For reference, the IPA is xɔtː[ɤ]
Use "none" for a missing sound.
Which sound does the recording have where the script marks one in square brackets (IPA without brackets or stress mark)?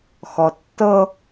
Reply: ɤ